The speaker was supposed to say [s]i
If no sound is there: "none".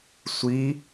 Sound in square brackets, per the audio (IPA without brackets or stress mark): sʷ